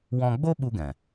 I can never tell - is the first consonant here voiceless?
no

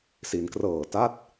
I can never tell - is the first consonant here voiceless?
yes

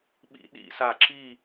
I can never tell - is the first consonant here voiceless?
no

